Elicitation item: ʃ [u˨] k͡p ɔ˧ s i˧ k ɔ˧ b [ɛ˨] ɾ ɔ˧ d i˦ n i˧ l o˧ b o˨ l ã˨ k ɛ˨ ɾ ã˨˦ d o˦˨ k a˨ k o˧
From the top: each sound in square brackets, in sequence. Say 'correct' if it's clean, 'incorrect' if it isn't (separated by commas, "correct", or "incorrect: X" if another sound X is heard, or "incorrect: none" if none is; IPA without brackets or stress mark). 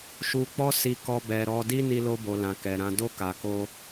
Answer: correct, correct